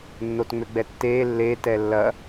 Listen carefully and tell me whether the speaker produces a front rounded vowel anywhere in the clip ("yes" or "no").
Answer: yes